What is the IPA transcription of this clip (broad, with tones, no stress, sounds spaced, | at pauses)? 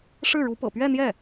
ʂ ɻ̩˥˩ ɻ u˧˥ p ɤ̰˨˩ p ɥ ɛ˥˧ n̪ j ɛ˥˩